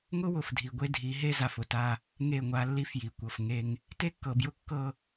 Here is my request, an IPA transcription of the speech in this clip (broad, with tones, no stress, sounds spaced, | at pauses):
ŋ ʊ˦ w ʊ˨ f dʱ i˨ ɡʷ e˦ dʱ i˨˦ ɦ e˦ z a˨ f ʊ˨ t a˦ | ŋ e˦˨ ŋʷ a˦ lː i˦ f j i˨ kʷ ɤ˨ f ŋ e˦ ŋ | t e˦ kː ɤ˨ b j ʊ˦ kː ɤ˦